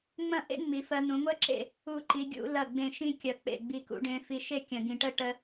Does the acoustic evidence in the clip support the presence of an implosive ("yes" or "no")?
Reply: no